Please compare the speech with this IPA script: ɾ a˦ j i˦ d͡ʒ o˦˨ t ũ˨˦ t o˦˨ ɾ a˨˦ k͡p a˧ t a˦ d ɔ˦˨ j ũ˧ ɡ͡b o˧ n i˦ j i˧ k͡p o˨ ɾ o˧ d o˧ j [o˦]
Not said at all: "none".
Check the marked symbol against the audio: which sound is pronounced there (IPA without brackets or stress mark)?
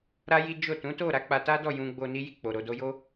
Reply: o˦